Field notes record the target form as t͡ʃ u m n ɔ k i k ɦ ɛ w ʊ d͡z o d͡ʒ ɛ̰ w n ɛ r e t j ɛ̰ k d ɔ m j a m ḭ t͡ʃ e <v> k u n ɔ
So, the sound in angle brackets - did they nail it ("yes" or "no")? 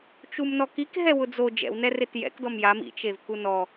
yes